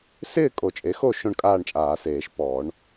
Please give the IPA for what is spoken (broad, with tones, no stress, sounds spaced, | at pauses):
s ɪː˥˨ kʼ o˨˩˦ t͡ʃʼ e˩˥ x o˥˨ ʃ õ˥˨ ɳ kʼ aː˥˨ ɳ t͡ʃʼ aː˨˩˦ s eː˨˩˦ ʃ p ɔː˨˩˦ ɳ